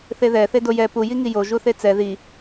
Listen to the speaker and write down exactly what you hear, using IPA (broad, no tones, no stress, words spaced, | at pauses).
θeðɛ θedojɛ pu jiŋijo ʒuθet͡sɛ ði